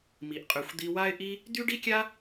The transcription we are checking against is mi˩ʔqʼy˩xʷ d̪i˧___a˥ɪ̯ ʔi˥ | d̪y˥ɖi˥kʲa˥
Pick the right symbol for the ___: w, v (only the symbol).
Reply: w